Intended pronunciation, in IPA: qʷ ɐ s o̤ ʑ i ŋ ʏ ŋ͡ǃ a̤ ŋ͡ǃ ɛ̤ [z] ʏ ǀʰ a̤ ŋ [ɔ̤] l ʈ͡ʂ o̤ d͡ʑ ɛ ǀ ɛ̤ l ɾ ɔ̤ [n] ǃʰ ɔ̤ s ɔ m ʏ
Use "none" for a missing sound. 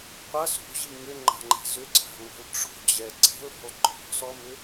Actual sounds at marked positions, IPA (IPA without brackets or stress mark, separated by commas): z, ɔ̤, l